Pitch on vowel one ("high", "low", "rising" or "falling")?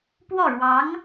falling